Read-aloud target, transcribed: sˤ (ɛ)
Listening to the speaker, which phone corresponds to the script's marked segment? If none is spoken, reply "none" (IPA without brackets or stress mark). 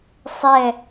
ɛ